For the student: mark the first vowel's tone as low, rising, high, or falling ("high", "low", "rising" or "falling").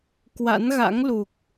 rising